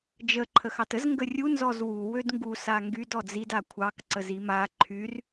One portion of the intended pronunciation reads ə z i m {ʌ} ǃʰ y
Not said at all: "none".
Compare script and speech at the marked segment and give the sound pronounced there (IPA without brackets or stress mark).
a